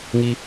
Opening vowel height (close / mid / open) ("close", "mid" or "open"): close